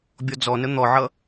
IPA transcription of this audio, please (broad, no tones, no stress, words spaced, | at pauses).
bʲɔd͡zɔnə n̪ɔʕʌ